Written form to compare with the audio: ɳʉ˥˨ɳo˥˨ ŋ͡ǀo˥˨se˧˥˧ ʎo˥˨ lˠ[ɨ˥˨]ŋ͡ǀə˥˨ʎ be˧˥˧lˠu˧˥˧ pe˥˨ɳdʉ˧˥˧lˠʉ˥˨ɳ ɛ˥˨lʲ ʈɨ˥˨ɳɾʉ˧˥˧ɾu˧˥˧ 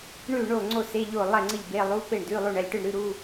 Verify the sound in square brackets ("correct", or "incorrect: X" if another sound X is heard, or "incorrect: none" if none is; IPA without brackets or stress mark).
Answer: incorrect: ɛ˥˨